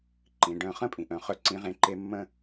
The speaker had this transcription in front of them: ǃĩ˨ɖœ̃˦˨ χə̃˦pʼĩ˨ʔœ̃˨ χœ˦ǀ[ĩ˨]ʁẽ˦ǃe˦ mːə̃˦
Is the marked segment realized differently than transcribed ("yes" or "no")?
yes